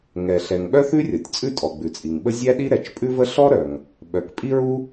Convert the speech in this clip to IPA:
ŋ ɛ˩ ɬ ɛ˩ ŋ ɓ œ˥ θ ʉ˥ rʲ ɔ˩ tʲ t͡sʼ ʉ˥ tʼ ɔ˩ ɡ͡b ʉ˩ t͡sʼ i˩ ŋ ɓ ə˥ zʲ æ˥ ɗ i˥ ɾ ɛ˩ t͡ʃ pʼ ʉ˥ v ə˥ ɬ ɔ˥ ɾ œ˩ ŋ | ɓ œ˩ k pʼ i˥ ɹ u˥

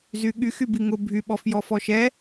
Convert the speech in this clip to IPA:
z y ɠ y x y b i ŋ ʊ bʱ y ɓ ɔ f j ɔ f ɔ ʃ ɛ

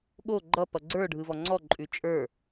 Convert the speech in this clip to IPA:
ɠ o ɡ͡ǃ ʌ p ʌ ɡ͡ǀ ə˞ ɖʱ ɯ v ɔ ŋ͡ǀ ɔ ǃʼ ʉ t͡ʃʼ ə˞

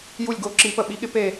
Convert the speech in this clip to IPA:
j u˦˨ lʲ ɡ o˦˨ ǁ i˧˥ p ə˦˨ ɓ i˧˥ ɠ ɪ˧˥ p e˦˨

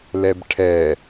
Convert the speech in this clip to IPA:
l ɛ b ʈʰ ɛ

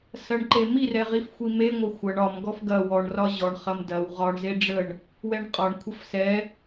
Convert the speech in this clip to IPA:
s ɐ ɳ ǃ e m i r ɛ ʁ i f xʷ i m e ŋʷ ɐ xʷ ɐ ɳ ɒ m ɡ ɔ f ɡ ɐ w ɔ ɳ r ɒ ʑ ɔ ɳ χ ɐ m d ɐ w ʁ ɒ ɳ z e ɖ͡ʐ ə ɳ | w ɛ ɳ qʼ ɒ ɳ kʷʰ ɐ f s ɛ

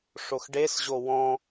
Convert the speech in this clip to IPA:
ʂ o x ɖ e s ʑ o w ɔ̃

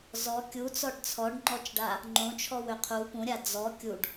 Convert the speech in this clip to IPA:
z ɔ kʲ u t͡s ɔ ɖ t͡sʰ ɔ ɖ ŋ͡ǃ ɔ t͡ʃ ɖ a | ŋ͡ǃ õ t͡ʃʰ ɔ w ø qʰ u p ũ ɾʲ a d͡z ɔ kʲ u ɖ

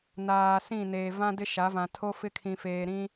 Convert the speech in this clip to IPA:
n aː˨ s ĩ˦˨ n eː˨ v ã˦ d ɪ˦ ʃ a˨˦ v ã˨ tʰ o˦ f ɪ˦ kʰ ĩ˨ f eː˨ ɾ ĩ˦

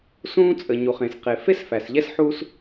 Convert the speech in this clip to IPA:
s ũː˥ t͡sʼ ə˩ ɲ u˩ χ ẽ˩ s q e˩ f e˥ s f æ˩ s ʎ ɛ˥ s ħ u˥ s

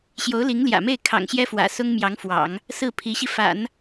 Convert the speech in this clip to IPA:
ɕ j o˧˥ ʊ̯ l i˧˥ ŋ l j ä̰˨˩ m e˥˩ ɪ̯ kʰ ɑ̰˨˩ ŋ ɕ j ɛ˥ f w ä̰˨˩ s ʊ˥ ŋ m j ɑ˧˥ ŋ f w ɑ̰˨˩˦ ŋ | s ɹ̩˥˩ pʰ i˧˥ ɕ i˧ f a̰˨˩˦ n

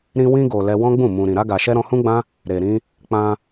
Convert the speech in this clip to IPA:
ɾ ĩ˧ w ĩ˧ ɡ o˨ l ɛ˧ w ɔ̃˦ ɡ͡b ũ˦˨ m ũ˨ ɾ ĩ˨ ɾ a˧ ɡ a˨ ʃ ɛ˧ ɾ ɔ̃˧ h ũ˦ ɡ͡b ã˦ | ɾ e˨ ɾ ĩ˧ | k͡p ã˧

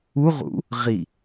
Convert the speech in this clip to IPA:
u ʁ ṵ | ʁ i

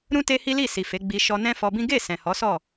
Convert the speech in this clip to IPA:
ɾ ũ˦ t e˦ h i˦ l i˦˨ s i˨ f e˨˦ ɡ͡b i˧ ʃ ɔ˧ n ɛ̃˦ f ɔ˧ b ĩ˦ ɡ e˦˨ s ɛ̃˨ h ɔ˨˦ s ɔ˦˨

